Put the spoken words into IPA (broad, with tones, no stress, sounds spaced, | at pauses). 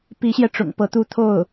p i˧˥ ɕ j ɛ˧ ʈ͡ʂ ʊ̰˨˩ ŋ p ɤ˧˥ t̪ u˥˧ t̪ʰ o˥˩ ʊ̯